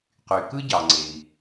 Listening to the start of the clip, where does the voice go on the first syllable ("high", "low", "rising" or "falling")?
low